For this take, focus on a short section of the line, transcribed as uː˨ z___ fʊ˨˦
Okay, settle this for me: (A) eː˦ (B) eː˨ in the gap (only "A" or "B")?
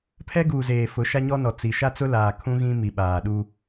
B